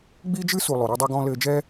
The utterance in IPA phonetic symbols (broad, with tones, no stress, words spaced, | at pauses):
ɡ͡bi˦d͡ʒɨ˦su˨ lˠo˨ɾo˦dˤɛ˦ɡɔ̃ː˦ lɘː˧d͡ʒɛ˦